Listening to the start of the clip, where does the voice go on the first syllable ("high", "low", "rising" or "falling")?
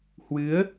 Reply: rising